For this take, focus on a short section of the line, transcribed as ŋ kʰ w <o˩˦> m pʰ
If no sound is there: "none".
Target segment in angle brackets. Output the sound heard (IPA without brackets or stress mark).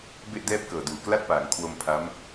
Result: o˧